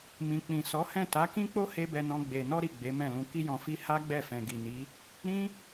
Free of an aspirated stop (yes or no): yes